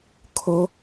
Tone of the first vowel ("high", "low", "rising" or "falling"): high